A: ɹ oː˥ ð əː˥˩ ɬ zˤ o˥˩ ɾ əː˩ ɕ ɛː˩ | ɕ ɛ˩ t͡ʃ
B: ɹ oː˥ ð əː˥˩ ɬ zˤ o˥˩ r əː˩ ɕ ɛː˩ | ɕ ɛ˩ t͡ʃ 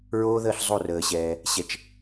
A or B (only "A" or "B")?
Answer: B